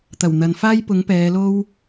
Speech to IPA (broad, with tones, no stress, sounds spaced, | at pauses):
t̪ ɐ˨˩ w n̪ ɐ˨ n f aː˥ j p ʊ˨˥ ŋ p ɛː˨˧ l o˥ w